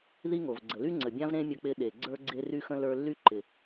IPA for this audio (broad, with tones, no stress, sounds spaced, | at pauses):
ð i˥ ŋ o˩ v ɡ͡ǀ ə˩ l y˥ ŋ͡ǀ ə˩ bʲ ã˥ v ɾ ẽ˥ mʲ ə˧ k͡p ɪ˧ ɗ e˩ ɡ͡ǀ ə˞˥ ɡ͡ǀ e˥ r y˥ x ə̃˥ l ə˞˧ lː y˥ ǃ ɪ˩